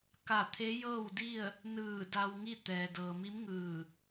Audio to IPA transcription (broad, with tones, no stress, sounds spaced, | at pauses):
k a˧˩ t̪ʰ e˧˥ j ɤː˥˨ w d i˥˨ ə̯ | n ɯː˧˩ d a˧ w ŋ i˥˨ t̪ ɛː˩ d ɤː˩ m i˧˥ m ŋ ɯː˧˩